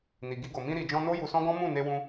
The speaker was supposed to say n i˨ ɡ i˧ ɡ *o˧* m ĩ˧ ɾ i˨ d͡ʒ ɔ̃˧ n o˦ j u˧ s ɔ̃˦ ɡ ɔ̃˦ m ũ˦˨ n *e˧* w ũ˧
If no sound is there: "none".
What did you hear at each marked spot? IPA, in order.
o˨, e˧

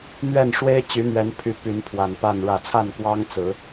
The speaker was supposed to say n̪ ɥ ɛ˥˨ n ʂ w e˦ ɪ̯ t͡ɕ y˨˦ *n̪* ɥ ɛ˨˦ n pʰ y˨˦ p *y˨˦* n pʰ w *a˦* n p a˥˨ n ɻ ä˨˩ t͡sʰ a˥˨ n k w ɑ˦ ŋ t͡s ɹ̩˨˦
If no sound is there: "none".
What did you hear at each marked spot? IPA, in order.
n̪, y˨˦, a˨˩

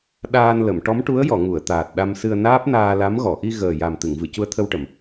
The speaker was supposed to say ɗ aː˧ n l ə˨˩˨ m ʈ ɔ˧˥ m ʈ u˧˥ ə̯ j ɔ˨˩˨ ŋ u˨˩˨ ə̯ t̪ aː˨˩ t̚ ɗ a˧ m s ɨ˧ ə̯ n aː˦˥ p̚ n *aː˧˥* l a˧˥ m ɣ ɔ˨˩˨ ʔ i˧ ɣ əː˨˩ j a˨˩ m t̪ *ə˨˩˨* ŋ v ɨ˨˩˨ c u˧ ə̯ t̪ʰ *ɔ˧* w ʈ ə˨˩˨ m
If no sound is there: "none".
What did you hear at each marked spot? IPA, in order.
aː˧, ɨ˨˩˨, ə˧

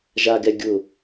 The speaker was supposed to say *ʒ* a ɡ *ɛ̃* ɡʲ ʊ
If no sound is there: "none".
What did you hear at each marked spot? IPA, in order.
ʒ, ɛ

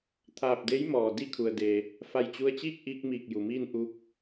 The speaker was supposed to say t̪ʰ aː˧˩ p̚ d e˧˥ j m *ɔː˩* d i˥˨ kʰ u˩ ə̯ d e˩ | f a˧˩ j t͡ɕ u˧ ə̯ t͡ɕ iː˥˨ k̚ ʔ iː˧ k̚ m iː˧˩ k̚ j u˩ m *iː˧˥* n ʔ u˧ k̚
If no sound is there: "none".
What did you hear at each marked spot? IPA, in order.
ɔː˩, iː˥˨

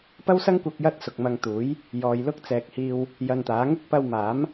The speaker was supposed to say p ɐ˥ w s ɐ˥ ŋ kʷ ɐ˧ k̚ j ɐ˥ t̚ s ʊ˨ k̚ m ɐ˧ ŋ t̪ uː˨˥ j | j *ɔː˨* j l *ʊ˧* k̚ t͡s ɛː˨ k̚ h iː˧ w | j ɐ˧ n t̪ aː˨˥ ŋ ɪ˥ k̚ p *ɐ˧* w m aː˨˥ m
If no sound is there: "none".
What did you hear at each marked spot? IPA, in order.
ɔː˨, ʊ˥, ɐ˧

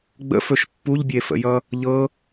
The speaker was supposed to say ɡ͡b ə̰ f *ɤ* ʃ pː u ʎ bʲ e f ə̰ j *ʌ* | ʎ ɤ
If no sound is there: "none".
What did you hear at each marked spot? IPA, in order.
ɵ, ʌ

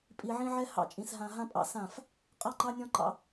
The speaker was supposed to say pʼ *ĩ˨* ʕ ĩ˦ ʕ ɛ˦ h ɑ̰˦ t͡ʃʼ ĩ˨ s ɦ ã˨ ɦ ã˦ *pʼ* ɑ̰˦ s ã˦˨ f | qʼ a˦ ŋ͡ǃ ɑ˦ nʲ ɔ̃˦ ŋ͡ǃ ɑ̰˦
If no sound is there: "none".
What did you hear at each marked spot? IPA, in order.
i˨, pʼ

